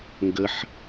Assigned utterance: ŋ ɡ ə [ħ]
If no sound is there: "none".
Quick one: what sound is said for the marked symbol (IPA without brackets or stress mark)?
ħ